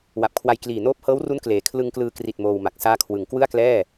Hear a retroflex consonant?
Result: no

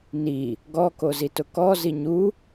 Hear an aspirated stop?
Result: no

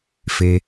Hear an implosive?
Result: no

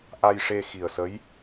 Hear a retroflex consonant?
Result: yes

